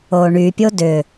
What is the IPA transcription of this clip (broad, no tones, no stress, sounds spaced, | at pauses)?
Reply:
oː ɳ y pʲ o d ʏ